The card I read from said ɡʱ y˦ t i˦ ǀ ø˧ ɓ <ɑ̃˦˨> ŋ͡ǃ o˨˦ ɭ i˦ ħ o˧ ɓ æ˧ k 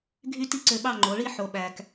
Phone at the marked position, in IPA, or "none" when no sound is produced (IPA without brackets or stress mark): ɑ˦˨